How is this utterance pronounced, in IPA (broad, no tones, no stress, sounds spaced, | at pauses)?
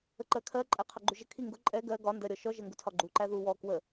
ə ǃ ɜ kʰ ɜ ǃʼ æ qʰ ɑ ɡ͡ǃ u ʒ ə kʰ i ŋ ɡ ʊ ǃʼ ɛ ɡ ɜ ɡ ɒ n d ɜ ɾʲ ɔ ʃ ɔ ʒ ɜ ŋ ɡ u tʰ ɒ ɡ͡ǃ u ǃ æ ð u w ɔ k w ə